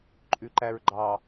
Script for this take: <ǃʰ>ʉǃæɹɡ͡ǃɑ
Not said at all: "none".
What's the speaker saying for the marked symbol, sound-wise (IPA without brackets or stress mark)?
ǃʼ